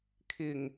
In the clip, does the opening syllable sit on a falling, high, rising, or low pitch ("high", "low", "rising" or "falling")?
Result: low